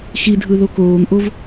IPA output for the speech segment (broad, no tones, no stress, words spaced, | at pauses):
xidʱɯ ðokoːŋʔov